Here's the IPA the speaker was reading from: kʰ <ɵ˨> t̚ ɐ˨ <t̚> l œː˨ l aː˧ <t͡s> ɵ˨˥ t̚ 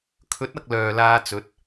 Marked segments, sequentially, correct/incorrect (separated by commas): incorrect, incorrect, correct